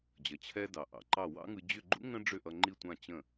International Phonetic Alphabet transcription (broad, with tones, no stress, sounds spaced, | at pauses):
d͡ʑ ʌ˩ t͡ɕʰ ɛ˧ d ɑ˩ ʔ ɑ̰˩ ǃ ɑ˥˩ w ɑ̰˥ ŋ ɯ˧ d͡ʑ ʏ˥˩ ɡ͡ǃ ṵ˥ ŋ ə̃˥ ɖ͡ʐ ʏ˥˩ ʔ ʌ˧ ŋ͡ǃ i˥˩ tʷ ã˥˩ t͡ɕ ə̃˥˩